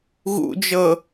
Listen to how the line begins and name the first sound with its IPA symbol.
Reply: ɣ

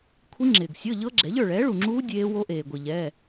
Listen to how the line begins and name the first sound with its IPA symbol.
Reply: kʷʰ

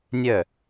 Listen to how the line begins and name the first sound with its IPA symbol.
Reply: nʲ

